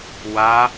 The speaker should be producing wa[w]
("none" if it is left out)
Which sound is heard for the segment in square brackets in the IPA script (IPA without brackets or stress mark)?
none